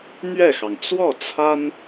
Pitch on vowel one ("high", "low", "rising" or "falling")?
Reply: falling